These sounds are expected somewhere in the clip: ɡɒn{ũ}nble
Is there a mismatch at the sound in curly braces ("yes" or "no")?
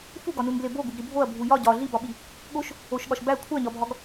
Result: yes